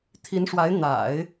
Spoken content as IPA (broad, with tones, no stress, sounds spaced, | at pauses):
t̪ʰ i˧˥ n ʂ w a˧˥ ɪ̯ n̪ a̰˨˩˦ ɪ̯